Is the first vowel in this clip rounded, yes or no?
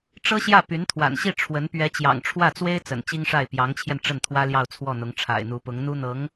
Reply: no